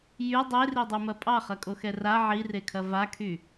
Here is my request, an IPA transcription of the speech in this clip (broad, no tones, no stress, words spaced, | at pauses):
jy dˤeridˤymɐ pʼɑχɐkʼoxɛ ra ʕirekʰɐ vakʰy